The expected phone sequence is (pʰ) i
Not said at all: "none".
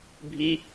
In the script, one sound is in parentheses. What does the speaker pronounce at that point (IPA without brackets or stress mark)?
bʱ